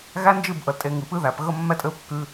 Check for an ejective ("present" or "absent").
present